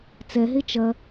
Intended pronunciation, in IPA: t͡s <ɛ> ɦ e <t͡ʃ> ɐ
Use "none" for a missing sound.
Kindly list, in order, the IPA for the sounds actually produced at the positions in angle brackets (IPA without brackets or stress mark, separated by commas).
ɛ, t͡ʃ